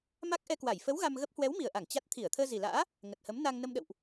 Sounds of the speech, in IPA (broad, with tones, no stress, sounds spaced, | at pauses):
m a˦˥ k̚ ʔ ɛ˧ k w a˧˩ j f ə˨˦ w ɣ a˧ m ɣ ə˦˥ p̚ h w ɛ˨˦ w m i˨˩ ə̯ ʔ a˧˩ ŋ t͡ɕ a˦˥ t̚ t̪ʰ i˧˩ ə̯ t̪ʰ əː˧ z i˨˩ l a̰ː˧˥ | ŋ ə˨˩ t̚ h ə˨˦ m n a˧ ŋ n ə˧ m ɗ ə̰˧˨ w ʔ